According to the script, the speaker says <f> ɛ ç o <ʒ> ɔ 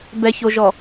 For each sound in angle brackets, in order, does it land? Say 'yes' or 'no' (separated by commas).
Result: no, yes